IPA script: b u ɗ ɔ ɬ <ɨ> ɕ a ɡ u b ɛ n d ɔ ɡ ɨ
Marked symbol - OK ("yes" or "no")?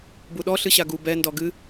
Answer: yes